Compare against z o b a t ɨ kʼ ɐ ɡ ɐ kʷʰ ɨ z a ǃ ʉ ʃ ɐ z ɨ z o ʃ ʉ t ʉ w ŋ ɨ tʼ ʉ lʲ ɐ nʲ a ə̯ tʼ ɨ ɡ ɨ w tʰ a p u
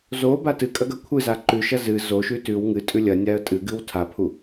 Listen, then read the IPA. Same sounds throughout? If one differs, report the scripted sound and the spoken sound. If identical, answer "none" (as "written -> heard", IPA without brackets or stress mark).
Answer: p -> pʰ